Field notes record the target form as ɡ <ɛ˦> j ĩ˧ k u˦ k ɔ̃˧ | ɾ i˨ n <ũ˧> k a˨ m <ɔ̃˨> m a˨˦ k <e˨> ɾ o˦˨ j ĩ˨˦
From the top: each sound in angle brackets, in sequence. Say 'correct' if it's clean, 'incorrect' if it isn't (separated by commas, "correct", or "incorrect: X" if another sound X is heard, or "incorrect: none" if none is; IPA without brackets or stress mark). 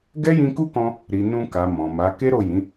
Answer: correct, correct, correct, incorrect: e˦